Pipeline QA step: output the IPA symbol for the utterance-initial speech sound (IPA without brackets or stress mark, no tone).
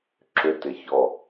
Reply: ǁ